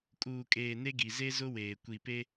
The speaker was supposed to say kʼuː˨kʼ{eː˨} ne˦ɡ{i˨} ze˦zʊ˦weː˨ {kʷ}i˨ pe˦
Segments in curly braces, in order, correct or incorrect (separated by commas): correct, correct, correct